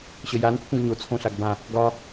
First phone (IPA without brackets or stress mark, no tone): ɕ